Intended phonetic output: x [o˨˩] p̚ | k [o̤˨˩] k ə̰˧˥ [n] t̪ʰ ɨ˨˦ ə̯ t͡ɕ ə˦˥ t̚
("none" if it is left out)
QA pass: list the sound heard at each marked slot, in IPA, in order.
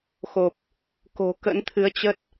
o˨˩, o̤˨˩, n

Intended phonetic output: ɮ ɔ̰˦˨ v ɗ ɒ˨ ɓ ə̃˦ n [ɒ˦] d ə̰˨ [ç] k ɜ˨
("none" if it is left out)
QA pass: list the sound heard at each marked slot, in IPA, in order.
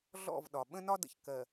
ɒ˦, ç

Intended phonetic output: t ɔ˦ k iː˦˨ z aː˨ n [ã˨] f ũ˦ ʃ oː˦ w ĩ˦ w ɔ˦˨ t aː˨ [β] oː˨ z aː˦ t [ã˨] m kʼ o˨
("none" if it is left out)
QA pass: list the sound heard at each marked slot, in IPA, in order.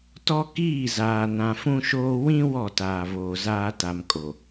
ã˨, β, a˨

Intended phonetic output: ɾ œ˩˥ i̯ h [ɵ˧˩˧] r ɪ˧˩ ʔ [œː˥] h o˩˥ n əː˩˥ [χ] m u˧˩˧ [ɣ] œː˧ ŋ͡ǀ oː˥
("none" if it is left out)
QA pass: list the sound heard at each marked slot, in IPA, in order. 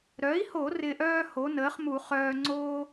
o˧˩˧, œː˥, χ, χ

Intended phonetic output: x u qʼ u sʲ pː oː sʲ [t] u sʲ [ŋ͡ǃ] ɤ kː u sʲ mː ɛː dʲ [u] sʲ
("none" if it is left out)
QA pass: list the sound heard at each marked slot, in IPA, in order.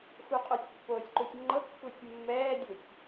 ǃ, ŋ͡ǃ, u

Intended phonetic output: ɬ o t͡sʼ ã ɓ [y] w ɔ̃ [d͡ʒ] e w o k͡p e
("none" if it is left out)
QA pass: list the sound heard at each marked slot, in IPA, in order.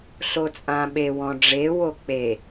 e, ɖ͡ʐ

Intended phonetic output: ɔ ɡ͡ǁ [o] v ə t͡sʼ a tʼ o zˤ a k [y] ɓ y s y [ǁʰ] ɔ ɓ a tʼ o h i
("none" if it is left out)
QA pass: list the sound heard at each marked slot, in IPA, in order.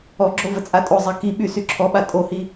o, i, ǁʰ

